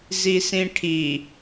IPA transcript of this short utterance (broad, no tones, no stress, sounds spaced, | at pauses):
z i s ĩ ʈʰ i